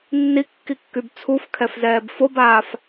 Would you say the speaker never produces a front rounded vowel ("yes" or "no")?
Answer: no